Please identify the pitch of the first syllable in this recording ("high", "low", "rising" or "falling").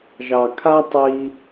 low